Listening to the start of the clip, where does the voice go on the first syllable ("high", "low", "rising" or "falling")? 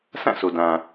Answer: falling